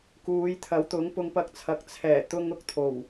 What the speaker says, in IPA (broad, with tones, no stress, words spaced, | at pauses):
kuː˨˧jt̪ʰɐ˨˥wt̪ʊ˨˥ŋ pʊ˧ŋpɐ˧k̚t͡sʰɐ˨˥k̚ t͡sʰɛː˨˩ t̪ʊ˧ŋʊ˧k̚t̪ʰo˨˩w